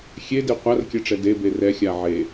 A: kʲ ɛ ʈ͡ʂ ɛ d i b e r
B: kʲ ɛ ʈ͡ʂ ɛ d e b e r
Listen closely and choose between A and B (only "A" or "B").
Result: B